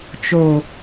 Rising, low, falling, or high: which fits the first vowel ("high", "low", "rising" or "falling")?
low